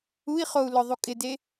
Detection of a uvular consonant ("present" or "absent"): present